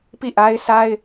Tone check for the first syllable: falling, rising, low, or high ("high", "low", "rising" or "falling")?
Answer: falling